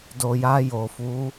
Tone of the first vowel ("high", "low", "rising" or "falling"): low